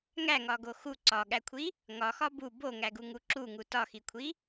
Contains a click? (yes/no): yes